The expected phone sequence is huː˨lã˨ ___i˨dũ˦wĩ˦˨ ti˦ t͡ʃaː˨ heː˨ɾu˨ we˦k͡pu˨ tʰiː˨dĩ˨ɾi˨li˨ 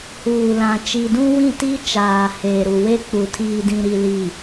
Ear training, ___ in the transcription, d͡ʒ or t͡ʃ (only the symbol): t͡ʃ